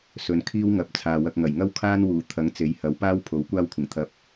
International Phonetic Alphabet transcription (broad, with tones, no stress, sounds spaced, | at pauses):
s ɵ˨˧ n kʰ iː˥ w ŋ ɐ˨˥ p̚ t͡sʰ aː˨ w ɐ˧ k̚ ŋ ɐ˨˩ j ŋ ɐ˥ w kʰ aː˥ n w uː˨˩ t̪ʰ ɐ˨˥ ŋ t͡s e˨˥ j h ɐ˨˥ w p aː˥ w pʰ o˨˥ w kʷ aː˥ w kʷʰ ɪ˨˩ ŋ t̪ʰ ɐ˧ p̚